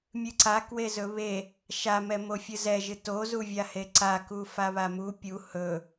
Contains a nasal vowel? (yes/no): no